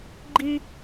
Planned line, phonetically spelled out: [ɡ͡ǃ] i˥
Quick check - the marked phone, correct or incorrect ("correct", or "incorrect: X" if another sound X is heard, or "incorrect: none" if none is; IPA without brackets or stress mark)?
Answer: correct